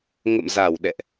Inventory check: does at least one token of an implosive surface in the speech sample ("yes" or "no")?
yes